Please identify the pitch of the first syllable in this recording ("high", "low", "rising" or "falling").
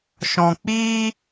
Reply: low